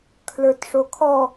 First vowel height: mid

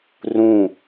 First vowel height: high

